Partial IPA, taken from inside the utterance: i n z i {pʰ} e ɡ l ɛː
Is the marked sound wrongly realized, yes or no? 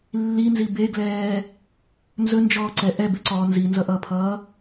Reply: yes